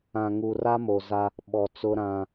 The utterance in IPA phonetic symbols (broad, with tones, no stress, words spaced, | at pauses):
ã˨ŋu˨ ra˦mo˨za˦ | ɓɔ˨t͡sʊ˦ɾã˦